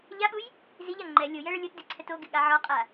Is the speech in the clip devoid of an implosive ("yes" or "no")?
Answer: no